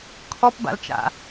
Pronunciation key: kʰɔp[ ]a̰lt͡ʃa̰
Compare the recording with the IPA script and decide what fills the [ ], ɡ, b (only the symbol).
b